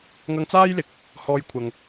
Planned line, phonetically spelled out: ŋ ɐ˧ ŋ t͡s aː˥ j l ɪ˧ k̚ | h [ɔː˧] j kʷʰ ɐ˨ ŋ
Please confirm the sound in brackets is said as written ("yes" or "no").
yes